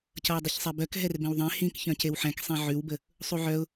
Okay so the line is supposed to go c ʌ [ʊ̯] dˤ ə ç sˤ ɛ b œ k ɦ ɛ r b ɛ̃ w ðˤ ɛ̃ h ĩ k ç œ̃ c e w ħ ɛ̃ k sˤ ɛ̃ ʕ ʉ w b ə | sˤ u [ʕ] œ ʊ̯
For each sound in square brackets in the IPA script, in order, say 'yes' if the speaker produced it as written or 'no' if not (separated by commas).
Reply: yes, yes